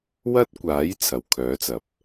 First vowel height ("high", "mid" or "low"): low